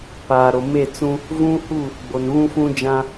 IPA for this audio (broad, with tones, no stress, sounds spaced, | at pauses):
p aː˨ ɾ o˨ m e˦˨ t͡s ũ˦ | v ũ˦ h u˦˨ | ɡ͡b o˨ n β ũ˦ f ũ˦ d͡ʒ ã˦